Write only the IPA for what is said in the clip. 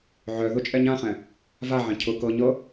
ʕ œ ð ʊ t͡ʃʼ ɛ ɲ ã χ ɛ̃ | v a ʕ ɛ̃ cʰ ʊ k ɤ ɲ ɤ

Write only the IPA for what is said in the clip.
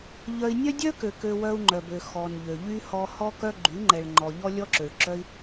ʎ œ˧ i̯ nʲ œ˦ dʲ œ˦ k ø˨ k ø˧ w œ˧ u̯ ŋ͡ǃ œ˨ b ø˨ x ɔ˨ n ʎ ø˨ ʎ y˧ h ɔ˧ h ɔ˦ k œ˦ ɡ͡ǃ y˨˦ ŋ͡ǃ ɛ˨ ɭ ŋ͡ǃ ɔ˨ ʎ ɔ˦ lʲ ɔ˦ ǁ ø˨ ɭ ǁ œ˦ i̯

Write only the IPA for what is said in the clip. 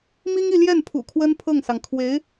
m i˥ ŋ i˥˧ l j ɛ˥˩ n pʰ ṵ˨˩ kʰ w ə˥ n pʰ ɤ˥˩ ŋ s ɑ˩ ŋ kʰ w e˧˥ ɪ̯

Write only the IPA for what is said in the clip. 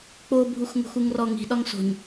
k͡p o bʱ u x ŋ o̤ x u ŋ r ɔ ŋ i̤ ɗ ɒ ŋ s o̤ ɲ

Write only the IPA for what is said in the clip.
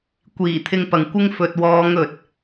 kʷ iː˨˩ t̪ʰ ɪ˧ ŋ p ɐ˨ ŋ kʷ ɪ˥ ŋ f ɵ˨ t̚ w ɔː˨˧ ŋ ɵ˨ t̚

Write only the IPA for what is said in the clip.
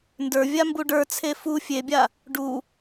n d ə˞ vʲ a m b u ɖ ə˞ t͡sʰ e f u fʲ e bʲ a | ɖ u

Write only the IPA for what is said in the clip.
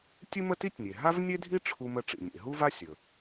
tʲ ɨ˥ m ə˥ t i˥ tʲ nʲ e˩ ɦ a˥ v nʲ e˥ dʱ i˥ ʈ͡ʂʰ u˥ m ə˥ ʈ͡ʂ ḭ˩ nʲ ḛ˩ ɦ u˥ v a˥ sʲ ɵ˩

